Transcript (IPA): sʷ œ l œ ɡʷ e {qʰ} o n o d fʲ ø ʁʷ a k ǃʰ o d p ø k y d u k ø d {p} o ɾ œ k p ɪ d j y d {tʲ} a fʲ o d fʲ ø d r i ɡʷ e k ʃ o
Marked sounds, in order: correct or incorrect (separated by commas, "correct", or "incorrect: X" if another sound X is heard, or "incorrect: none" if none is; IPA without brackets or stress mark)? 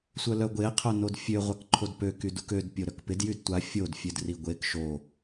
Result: correct, incorrect: pʲ, incorrect: tʷ